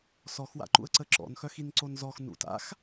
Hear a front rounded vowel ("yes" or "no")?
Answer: yes